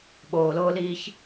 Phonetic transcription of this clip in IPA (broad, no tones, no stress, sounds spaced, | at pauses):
ɓ oː l oː l iː ç